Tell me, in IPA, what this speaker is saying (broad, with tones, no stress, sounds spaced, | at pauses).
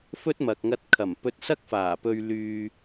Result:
f ɵ˥ t̚ m ɐ˨ k̚ ŋ ɐ˧ t̚ kʰ ɐ˨˩ m p ɵ˧ t̚ s ɐ˥ k̚ f aː˨˩ p ɵ˧ ɥ l yː˧